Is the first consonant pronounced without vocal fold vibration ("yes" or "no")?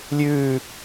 no